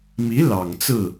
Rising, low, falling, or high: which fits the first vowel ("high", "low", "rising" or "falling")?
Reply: rising